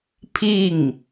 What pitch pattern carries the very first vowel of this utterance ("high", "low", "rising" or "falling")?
falling